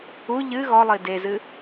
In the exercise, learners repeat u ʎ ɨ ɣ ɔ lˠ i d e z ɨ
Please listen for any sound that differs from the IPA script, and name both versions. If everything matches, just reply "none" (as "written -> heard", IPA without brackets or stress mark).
none